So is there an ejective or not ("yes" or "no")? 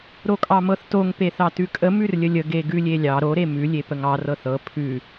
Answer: yes